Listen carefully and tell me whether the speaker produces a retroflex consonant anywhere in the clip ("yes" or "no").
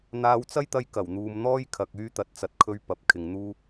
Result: no